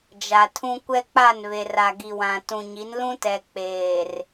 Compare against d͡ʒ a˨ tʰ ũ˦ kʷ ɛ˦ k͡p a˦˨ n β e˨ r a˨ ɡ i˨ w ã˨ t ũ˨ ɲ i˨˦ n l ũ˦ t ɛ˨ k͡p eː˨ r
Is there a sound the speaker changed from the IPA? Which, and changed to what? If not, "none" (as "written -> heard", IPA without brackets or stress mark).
none